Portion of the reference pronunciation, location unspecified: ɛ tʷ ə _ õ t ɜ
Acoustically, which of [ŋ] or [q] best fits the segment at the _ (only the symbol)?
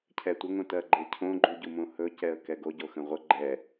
ŋ